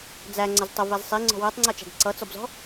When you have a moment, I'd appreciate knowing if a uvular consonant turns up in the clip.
no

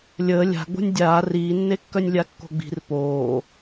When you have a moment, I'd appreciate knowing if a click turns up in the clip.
no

